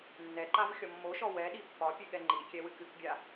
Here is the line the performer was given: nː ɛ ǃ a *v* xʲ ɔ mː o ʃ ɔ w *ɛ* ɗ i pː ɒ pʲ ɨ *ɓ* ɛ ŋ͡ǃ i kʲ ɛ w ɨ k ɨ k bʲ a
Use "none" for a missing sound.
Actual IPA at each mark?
v, ɛ, ɠ

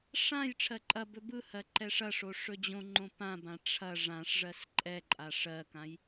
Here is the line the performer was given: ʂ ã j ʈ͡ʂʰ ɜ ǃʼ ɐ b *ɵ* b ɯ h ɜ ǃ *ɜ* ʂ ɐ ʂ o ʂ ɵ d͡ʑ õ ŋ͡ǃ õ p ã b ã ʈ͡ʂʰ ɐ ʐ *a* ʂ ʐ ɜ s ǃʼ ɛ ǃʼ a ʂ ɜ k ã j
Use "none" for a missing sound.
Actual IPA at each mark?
ɵ, ɛ, ã

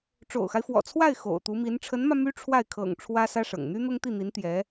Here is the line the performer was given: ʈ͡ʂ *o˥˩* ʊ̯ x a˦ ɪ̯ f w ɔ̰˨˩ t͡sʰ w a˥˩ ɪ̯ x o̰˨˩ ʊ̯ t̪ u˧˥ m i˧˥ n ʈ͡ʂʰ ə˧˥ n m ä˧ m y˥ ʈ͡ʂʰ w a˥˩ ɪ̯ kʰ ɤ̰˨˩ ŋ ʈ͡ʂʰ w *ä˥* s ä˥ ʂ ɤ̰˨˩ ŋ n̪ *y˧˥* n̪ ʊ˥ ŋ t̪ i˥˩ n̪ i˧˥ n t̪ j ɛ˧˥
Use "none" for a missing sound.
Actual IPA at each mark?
o̰˨˩, ä˥, y˥

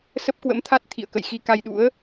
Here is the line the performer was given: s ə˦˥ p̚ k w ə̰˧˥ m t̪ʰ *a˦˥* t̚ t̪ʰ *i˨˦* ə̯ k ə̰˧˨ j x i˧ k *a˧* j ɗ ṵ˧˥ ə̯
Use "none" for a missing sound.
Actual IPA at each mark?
a˦˥, ḭ˧˨, a˧

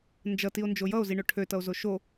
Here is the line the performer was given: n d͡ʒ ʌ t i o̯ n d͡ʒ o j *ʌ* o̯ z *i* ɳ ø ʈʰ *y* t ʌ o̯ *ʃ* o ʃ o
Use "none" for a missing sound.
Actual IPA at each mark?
ʌ, i, ø, z

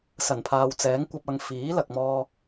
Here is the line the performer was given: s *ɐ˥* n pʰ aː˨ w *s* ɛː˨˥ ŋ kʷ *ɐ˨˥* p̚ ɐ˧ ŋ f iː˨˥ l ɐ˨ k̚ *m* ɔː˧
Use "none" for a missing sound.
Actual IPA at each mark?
ɐ˨˩, t͡s, ɐ˧, m

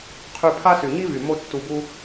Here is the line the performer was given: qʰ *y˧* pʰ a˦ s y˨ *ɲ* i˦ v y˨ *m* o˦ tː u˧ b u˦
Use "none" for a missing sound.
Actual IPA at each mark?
y˧, ɲ, m

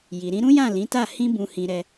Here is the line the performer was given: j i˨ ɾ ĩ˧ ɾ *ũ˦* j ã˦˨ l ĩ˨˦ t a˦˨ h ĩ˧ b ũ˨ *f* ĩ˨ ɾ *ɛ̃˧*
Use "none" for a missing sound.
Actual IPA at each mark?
ũ˦, h, ɛ˧

